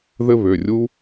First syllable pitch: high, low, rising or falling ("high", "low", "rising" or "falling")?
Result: high